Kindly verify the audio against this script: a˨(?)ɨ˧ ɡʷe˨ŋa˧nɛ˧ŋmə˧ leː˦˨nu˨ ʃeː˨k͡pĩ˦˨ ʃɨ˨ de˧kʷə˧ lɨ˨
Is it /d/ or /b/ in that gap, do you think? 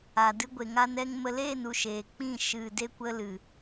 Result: d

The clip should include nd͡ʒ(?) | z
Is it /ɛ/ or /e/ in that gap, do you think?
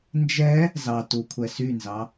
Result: ɛ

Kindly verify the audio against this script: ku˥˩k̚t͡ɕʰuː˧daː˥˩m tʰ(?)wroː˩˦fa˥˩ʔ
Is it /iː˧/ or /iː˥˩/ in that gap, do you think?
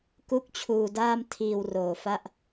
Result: iː˧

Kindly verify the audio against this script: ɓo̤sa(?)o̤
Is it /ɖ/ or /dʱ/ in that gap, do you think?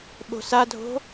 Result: dʱ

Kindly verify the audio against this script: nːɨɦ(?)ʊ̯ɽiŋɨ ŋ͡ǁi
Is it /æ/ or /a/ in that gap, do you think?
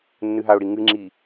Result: a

